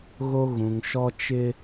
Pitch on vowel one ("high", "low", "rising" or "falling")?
high